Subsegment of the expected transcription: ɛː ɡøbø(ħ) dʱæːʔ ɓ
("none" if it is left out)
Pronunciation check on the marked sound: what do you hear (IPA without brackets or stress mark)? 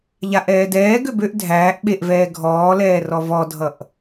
ʔ